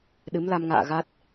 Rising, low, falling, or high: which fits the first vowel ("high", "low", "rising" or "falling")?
rising